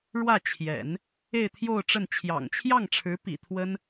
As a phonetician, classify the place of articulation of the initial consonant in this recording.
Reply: retroflex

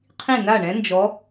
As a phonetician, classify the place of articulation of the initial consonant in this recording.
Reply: uvular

